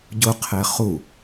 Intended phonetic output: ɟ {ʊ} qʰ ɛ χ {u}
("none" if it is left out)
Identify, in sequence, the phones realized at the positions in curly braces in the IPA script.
ʊ, u

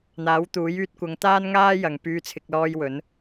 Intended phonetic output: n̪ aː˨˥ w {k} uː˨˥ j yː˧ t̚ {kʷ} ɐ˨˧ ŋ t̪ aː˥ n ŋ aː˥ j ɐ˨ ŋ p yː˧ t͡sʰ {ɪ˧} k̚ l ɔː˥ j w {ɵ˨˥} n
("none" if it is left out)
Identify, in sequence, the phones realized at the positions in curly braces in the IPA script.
t̪, kʷ, ɪ˧, ɵ˨˥

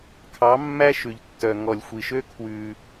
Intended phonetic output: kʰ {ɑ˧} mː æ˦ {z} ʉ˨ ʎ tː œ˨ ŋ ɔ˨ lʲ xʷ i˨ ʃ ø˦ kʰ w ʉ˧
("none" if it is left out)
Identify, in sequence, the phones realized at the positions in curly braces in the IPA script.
ɑ˨˦, ʃ

